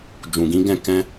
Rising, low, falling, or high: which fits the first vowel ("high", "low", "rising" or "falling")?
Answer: low